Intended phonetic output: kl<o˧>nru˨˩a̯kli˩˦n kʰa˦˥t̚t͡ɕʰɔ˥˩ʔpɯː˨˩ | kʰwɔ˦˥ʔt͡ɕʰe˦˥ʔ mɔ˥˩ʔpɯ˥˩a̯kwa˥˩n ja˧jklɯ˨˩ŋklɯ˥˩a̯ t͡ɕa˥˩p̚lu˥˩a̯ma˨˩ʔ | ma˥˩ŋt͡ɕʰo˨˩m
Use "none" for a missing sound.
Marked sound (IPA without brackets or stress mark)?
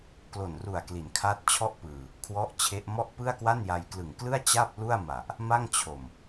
o˨˩